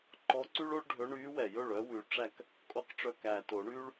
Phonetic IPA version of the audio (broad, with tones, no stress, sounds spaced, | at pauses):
ǃ ɔ˧˥ ǀ y˥ ɭ o˥ ɭ ɖʱ ɵ˧˥ ɳ yː˧˥ w ɛ˨˩ j ɵ˥˩ ɭ œ˧˥ w ʉ˨˩ ʈ͡ʂ æ˥˩ k | kʼ o˥ q ʈ͡ʂ œ˥˩ k æː˨˩ t o˨˩˦ ɳ yː˥ ɭ